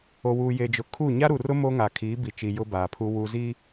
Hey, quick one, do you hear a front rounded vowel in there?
no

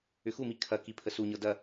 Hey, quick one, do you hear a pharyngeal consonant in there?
no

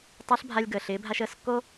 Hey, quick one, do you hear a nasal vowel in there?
no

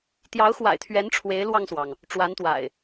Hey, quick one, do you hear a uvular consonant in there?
no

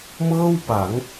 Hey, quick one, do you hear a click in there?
no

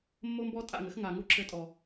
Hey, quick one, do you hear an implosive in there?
no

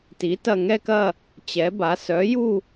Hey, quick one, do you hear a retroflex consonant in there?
no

